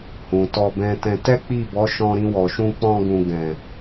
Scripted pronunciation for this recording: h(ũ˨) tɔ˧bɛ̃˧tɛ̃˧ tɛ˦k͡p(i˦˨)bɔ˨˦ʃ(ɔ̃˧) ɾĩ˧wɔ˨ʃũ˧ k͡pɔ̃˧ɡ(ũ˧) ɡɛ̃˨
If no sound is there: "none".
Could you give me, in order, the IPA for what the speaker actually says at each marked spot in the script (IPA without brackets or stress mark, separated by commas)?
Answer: ũ˨, i˦˨, ɔ̃˧, ũ˨